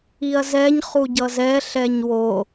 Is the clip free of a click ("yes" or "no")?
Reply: yes